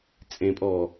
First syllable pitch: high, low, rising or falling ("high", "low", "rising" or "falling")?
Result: low